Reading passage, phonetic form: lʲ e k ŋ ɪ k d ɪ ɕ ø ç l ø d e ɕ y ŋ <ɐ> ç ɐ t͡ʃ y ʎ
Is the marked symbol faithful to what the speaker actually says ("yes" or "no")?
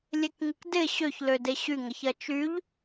yes